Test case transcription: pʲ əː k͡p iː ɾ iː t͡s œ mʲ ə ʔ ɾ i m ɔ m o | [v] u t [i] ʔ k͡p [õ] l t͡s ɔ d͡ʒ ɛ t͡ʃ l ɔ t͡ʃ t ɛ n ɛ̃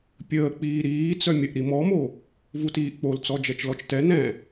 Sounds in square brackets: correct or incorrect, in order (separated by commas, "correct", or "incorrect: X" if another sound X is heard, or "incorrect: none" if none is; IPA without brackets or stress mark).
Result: correct, incorrect: iː, incorrect: o